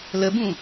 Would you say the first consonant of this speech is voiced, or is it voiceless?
voiced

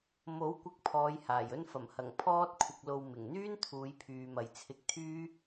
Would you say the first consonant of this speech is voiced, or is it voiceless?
voiced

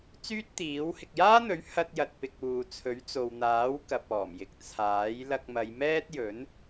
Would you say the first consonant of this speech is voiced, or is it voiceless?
voiceless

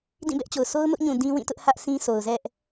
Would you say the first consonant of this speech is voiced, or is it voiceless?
voiced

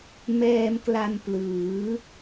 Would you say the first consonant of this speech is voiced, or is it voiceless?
voiced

